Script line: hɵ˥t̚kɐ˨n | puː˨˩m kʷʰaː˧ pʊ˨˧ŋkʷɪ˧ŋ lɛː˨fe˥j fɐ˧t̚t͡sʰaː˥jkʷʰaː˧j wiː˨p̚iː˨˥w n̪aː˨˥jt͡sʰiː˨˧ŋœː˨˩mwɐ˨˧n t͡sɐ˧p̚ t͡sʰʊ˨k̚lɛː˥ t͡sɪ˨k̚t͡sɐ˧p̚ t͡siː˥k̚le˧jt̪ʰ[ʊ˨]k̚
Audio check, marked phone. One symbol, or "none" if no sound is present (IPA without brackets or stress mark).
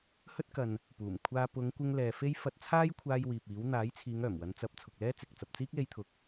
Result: ʊ˨